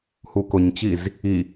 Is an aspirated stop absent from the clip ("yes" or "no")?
yes